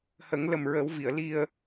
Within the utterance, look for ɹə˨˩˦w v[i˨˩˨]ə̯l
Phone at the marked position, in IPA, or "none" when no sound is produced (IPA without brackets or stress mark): i˨˩˨